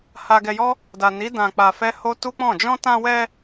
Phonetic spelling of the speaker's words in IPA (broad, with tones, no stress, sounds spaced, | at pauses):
h a˧ ɡ ɛ˧ j ɔ˦ | d a˨ n i˨˦ d ã˧ k͡p a˧ f ɛ˦ h o˦ t u˦ k͡p ɔ̃˦˨ d͡ʒ ɔ̃˧ t ã˧ w ɛ˧